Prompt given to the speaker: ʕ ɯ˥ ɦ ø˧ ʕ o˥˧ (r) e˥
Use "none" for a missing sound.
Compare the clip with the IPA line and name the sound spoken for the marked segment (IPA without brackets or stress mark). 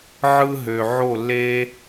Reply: lː